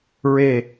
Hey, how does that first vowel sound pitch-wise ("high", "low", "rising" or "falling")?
falling